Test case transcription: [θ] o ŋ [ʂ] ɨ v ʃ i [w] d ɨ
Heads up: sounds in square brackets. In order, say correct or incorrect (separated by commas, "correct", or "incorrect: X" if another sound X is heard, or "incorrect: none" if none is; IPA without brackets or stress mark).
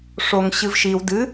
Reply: incorrect: ʂ, incorrect: ɕ, correct